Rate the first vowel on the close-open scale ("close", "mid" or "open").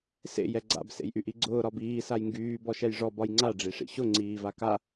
mid